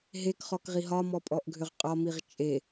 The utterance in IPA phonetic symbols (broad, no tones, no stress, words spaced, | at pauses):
ɦekχɔkʁi ɦɒmɔpʼɔʔɡʱʏʁ qʼɒmiʁ t͡ʃʼe